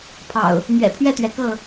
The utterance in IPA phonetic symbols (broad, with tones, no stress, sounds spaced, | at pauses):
pʰ ɑ̰˨˩ ʊ̯ | m ɥ ɛ̰˨˩ pʰ ɥ ɛ˥˨ t̪ ɥ ɛ˩ k ɤ˥˨